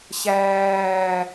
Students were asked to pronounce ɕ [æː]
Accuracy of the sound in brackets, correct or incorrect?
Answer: correct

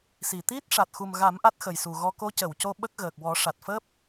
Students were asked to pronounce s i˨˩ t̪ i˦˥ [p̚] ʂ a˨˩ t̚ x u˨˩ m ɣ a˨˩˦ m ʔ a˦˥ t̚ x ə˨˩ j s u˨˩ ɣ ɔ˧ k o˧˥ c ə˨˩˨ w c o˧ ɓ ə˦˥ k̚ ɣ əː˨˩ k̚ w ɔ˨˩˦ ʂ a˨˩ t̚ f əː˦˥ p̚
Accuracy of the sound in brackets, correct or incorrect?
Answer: incorrect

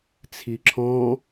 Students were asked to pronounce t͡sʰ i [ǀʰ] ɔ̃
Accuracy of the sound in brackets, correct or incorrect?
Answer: incorrect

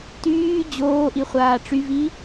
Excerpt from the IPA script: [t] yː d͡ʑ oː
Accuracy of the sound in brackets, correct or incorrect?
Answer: correct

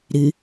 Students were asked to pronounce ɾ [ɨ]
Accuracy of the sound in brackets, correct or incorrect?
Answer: correct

